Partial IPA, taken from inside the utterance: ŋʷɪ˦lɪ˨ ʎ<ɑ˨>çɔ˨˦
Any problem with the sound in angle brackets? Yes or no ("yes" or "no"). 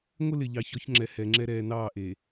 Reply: no